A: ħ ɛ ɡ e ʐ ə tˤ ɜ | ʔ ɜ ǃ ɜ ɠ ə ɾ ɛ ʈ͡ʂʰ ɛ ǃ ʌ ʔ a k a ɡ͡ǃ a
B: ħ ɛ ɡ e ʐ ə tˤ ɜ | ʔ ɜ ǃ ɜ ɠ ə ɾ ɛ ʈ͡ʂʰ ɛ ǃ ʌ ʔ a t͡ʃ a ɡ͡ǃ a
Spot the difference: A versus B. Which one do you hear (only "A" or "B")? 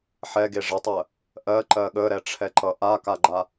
A